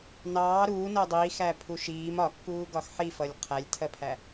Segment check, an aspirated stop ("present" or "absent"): present